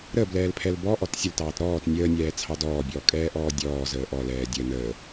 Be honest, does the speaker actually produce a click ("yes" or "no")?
no